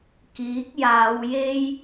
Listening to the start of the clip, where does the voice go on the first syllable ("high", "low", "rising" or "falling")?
rising